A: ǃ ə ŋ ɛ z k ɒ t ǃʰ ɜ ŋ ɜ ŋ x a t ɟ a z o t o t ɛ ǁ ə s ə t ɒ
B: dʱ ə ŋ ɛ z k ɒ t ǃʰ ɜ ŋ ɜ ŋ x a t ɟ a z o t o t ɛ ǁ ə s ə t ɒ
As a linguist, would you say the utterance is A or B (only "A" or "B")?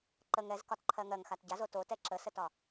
A